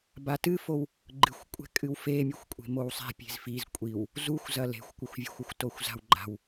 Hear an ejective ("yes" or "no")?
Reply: yes